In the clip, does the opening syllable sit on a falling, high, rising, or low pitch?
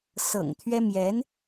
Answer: low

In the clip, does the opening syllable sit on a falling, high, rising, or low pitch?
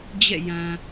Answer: falling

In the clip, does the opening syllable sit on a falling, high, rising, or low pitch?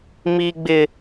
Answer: high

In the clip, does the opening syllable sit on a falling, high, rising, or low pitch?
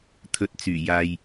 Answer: low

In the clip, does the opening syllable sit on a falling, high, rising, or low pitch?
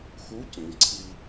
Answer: rising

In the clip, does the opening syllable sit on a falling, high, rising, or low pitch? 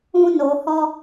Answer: high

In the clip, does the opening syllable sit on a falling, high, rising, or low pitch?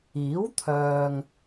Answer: rising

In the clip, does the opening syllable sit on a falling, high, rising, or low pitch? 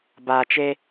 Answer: low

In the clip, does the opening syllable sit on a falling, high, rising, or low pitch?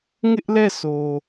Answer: high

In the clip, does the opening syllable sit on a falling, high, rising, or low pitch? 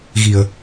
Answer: low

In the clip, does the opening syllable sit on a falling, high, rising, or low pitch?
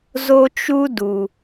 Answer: high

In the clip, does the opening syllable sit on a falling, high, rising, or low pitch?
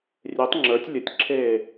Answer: rising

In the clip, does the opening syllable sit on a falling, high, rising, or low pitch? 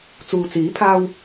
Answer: low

